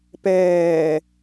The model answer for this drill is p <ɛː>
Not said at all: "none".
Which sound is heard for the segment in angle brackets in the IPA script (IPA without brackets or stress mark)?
ɛː